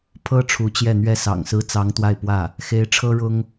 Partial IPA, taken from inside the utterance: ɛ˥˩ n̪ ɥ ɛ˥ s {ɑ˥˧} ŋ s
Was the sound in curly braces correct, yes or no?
no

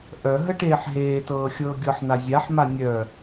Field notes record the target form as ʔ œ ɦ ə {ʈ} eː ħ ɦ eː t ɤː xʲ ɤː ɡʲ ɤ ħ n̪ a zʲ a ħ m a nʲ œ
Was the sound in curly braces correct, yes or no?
yes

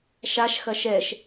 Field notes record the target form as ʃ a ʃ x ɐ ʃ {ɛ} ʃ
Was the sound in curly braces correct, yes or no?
yes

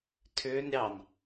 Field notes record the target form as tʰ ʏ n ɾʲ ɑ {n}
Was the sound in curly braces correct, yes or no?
yes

